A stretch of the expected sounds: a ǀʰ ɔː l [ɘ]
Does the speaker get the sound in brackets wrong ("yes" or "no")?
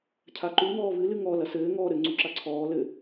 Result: no